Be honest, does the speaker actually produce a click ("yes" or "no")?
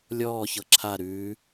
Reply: yes